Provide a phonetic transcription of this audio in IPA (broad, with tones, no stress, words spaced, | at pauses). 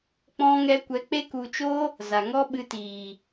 k͡pɔ̃˦ŋɛ˦ kʷɛ˧k͡pe˦ku˧t͡ʃo˦ | za˨ŋɔ˦ɓɨ˧tiː˨